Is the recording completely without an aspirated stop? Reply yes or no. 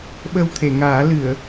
no